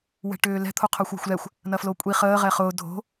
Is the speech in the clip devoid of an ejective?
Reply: no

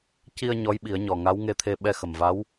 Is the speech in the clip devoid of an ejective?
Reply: yes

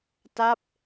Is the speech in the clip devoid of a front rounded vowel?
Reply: yes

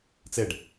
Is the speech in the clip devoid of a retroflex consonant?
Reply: no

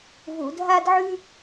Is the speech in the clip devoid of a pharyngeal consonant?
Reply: no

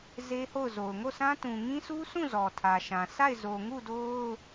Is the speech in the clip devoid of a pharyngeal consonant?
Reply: yes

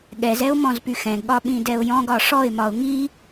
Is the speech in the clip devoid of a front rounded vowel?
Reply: no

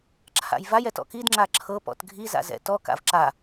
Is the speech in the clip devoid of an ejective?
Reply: yes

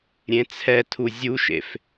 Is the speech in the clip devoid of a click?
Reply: yes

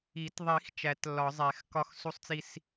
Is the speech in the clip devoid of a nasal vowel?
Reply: yes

